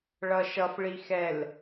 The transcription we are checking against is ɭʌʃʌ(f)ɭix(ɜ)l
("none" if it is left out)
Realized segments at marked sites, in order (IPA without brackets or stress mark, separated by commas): f, ɛ